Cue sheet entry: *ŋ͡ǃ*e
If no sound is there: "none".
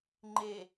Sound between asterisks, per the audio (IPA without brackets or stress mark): ŋ͡ǃ